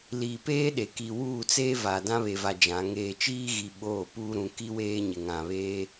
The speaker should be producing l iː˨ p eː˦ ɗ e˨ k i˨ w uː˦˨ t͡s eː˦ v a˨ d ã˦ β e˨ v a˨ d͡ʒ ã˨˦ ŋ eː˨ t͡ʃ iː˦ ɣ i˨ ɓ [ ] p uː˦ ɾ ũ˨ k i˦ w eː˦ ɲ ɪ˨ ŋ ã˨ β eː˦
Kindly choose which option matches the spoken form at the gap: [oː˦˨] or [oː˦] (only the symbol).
oː˦˨